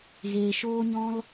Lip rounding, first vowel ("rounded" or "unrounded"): unrounded